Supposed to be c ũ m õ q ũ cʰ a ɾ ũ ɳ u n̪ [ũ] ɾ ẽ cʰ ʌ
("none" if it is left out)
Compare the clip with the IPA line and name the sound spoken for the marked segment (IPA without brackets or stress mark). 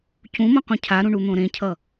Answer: õ